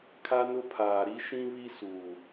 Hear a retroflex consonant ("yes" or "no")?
no